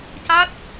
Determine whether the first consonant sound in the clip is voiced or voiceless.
voiceless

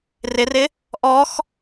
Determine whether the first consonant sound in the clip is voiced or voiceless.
voiced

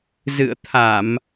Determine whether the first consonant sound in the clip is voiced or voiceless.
voiced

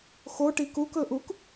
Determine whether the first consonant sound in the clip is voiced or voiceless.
voiceless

